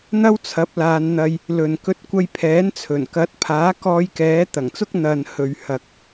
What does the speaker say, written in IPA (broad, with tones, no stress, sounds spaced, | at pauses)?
n̪ ɐ˥ w t͡sʰ ɐ˨˥ p̚ l aː˨˧ n n̪ ɐ˧ j | l ɵ˨ n k ɵ˧ t̚ kʷ ɐ˧ j pʰ ɛː˨˥ n t͡sʰ ɵ˨˩ n k ɐ˨˥ t̚ pʰ aː˨˥ k ɔː˧ j k ɛː˨˥ t̪ ɐ˨˩ ŋ t͡s ʊ˧ k̚ n̪ ɐ˨ n h ɵ˨ ɥ h ɐ˨ k̚